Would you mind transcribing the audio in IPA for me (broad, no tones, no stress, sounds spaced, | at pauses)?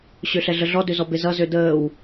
ɕ ø ɬ ɛ ɮ ə ɮ ɔ d ø z ɔ b e z ʌ z ø d əː w